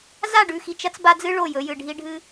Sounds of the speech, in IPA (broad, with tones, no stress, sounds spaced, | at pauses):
z a˦˨ ɖ ʉ˨ x i˨ t͡ʃ ɐ˦ t͡s b a˦ d͡z ɨ˦ ɭ o˦˨ j ɵ˨˦ j ɨ˨ ɖʱ i˦ ɖʱ ɨ˦